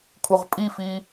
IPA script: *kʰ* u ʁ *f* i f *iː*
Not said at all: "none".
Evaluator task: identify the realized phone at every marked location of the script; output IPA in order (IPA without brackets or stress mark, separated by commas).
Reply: kʰ, pʼ, iː